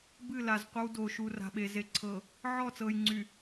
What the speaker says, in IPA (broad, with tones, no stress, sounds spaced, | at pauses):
b ɨ˦˨ l a˨ z qʷ ə˦ w d oː˨ ʃ u˨ r a̤˨ ɓ e˨ z e˨ ǀʰ ɤ˨ | ʕ ɔ˦˨ t͡s ɤː˨ j ŋ͡ǀ y˨